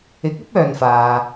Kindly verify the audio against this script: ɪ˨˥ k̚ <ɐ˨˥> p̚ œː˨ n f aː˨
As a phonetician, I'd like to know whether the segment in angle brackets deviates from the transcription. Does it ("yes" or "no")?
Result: no